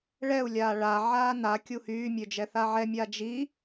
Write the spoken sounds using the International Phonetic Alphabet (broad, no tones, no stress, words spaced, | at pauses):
ɭɛu̯ lʲaːɭa ʕaːna kʲuhyː mʲød͡ʒɛθaʕɛ mʲad͡ʒi